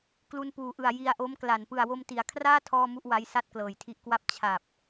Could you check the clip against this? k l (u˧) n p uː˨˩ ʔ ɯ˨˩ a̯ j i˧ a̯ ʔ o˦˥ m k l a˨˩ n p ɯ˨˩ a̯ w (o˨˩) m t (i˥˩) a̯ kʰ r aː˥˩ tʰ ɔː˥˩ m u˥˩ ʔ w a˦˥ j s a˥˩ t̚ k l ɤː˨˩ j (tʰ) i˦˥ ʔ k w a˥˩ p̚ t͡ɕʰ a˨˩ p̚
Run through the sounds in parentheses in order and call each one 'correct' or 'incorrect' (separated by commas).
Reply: correct, incorrect, incorrect, correct